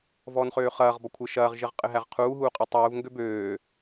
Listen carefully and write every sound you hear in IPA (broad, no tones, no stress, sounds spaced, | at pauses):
v ɔː n χ øː χ ɐː ʁ b ɔ kʷʰ ɘ ʃ ɐː ʁ ʒ ɘ ʁ qʼ ɘ ɦ æ ʁ qʰ uː ɦ uː qʼ ɐ tˤ uː v ŋ ɡ ø b øː